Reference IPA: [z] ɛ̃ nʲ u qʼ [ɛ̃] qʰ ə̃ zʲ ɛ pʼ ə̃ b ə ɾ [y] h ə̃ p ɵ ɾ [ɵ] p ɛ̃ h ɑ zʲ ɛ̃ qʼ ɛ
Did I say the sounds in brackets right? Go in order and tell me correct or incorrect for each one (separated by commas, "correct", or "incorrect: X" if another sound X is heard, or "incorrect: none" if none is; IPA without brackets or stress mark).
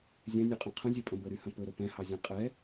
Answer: incorrect: zʲ, correct, correct, correct